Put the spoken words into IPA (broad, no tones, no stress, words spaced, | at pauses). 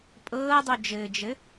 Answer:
pʼɤːdˤod͡ʒɘːd͡ʒɘ